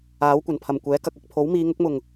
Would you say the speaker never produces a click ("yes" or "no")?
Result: yes